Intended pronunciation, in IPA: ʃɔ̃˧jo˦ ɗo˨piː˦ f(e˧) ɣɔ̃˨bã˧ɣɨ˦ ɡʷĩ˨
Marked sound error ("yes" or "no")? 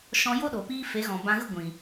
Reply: yes